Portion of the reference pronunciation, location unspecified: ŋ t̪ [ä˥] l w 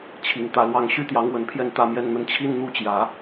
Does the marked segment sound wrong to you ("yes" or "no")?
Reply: yes